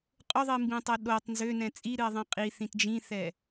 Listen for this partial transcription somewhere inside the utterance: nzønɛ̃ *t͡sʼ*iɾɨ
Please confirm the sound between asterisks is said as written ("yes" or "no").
yes